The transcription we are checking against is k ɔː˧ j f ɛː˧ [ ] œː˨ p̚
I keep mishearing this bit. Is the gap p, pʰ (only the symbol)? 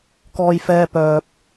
p